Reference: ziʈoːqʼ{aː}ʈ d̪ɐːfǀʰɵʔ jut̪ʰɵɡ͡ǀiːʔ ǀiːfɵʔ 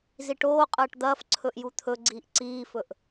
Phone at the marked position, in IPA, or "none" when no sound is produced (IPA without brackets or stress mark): ɐː